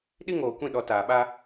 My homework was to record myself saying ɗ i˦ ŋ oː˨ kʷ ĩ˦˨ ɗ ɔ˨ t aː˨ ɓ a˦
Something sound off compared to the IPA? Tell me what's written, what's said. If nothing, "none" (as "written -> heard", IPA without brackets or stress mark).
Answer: none